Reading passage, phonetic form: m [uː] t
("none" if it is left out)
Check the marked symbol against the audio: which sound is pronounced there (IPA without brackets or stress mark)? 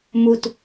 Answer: u